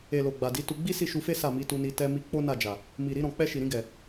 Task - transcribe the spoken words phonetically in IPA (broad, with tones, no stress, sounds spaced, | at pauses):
e˨ l o˨ ɡ͡b a˨ d i˨˦ t u˧ ɡ͡b i˦ s i˦˨ ʃ u˧ f e˦ s a˦˨ m i˨˦ t u˧ n i˧ t ɛ˧ m i˧ k͡p o˦ n a˦˨ d͡ʒ a˨ | m i˨ ɾ i˧ ɾ ɔ̃˨ k͡p ɛ˧ ʃ i˨ ɾ ĩ˧ ɡ ɛ˨